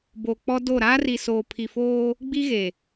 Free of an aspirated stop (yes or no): no